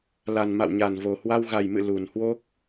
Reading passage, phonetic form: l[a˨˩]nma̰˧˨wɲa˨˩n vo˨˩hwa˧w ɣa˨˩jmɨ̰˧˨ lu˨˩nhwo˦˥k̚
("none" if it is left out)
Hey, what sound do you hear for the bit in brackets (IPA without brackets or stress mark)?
a˨˩